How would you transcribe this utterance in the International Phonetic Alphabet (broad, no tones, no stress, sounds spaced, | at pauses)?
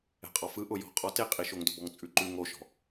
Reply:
ɛ̤ qʼ ɔ f ɯ ʔ ʊ j ɔ̤ qʼ ɔ t e qʼ i ʃ o ŋ d ʊ b ɔ ŋ t͡sʼ ʉ ǃ ʉ ŋ o ʃ ɔ̤